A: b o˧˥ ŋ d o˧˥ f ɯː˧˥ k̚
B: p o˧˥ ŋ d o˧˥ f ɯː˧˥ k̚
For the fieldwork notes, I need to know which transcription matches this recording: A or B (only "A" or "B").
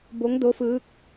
A